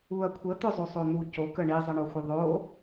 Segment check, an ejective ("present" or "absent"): absent